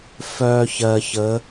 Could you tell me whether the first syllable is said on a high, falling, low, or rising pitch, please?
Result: low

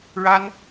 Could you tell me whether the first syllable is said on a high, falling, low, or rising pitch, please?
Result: high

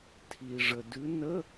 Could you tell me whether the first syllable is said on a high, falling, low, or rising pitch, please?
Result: low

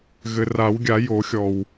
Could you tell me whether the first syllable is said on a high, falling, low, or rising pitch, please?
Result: low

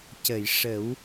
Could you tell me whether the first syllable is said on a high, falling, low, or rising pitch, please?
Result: low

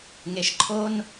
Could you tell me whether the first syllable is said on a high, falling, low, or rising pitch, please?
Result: low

